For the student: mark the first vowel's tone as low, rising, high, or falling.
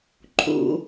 low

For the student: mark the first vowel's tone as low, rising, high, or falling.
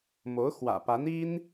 rising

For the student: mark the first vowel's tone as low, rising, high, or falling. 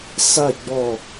falling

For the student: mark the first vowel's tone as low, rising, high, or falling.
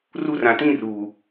high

